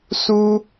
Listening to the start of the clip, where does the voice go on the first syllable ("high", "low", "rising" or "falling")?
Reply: high